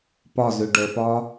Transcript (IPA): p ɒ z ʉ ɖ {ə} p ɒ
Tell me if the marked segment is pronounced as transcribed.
yes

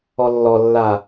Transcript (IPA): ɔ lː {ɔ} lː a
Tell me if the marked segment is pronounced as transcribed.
yes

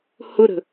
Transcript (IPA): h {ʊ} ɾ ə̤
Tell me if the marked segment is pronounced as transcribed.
yes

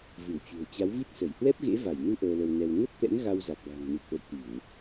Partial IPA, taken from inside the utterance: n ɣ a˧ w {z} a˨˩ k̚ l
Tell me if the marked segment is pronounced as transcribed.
yes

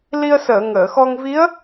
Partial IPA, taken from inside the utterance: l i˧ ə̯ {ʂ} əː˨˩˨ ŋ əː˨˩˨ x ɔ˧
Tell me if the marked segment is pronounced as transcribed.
no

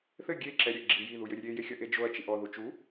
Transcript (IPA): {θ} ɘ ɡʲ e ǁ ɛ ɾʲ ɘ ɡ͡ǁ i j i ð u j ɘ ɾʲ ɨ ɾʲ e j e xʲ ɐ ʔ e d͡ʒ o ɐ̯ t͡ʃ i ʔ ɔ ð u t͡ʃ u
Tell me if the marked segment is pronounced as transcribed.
yes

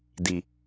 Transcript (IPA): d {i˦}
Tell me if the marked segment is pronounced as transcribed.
no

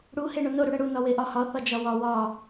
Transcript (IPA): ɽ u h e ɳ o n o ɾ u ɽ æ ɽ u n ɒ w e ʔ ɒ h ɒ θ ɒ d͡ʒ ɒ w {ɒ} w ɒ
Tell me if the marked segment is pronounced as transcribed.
yes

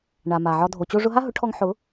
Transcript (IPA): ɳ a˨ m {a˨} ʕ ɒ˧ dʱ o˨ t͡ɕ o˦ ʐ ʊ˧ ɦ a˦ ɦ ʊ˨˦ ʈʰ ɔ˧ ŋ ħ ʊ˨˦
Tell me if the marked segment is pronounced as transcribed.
yes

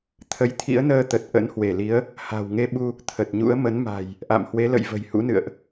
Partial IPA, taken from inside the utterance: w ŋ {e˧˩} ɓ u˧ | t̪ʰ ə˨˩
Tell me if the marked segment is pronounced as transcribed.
no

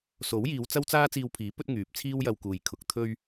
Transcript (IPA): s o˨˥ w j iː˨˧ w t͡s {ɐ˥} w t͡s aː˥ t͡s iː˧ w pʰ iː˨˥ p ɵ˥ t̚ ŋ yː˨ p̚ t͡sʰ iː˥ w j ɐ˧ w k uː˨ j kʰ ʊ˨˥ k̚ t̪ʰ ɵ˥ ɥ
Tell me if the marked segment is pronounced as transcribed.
yes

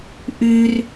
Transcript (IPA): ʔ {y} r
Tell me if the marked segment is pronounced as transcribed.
yes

